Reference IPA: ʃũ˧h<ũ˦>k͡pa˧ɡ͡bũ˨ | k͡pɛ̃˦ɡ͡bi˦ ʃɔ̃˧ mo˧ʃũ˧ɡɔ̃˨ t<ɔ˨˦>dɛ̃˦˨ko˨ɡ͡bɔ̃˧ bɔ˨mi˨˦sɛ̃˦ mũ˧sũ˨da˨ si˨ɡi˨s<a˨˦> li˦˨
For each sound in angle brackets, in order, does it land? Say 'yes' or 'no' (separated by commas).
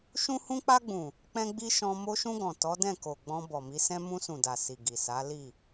no, yes, yes